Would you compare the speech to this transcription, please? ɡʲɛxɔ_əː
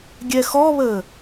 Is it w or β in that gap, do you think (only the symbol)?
β